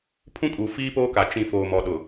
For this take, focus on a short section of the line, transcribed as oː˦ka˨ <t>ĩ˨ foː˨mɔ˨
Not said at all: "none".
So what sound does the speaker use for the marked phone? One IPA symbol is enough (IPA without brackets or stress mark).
t͡ʃ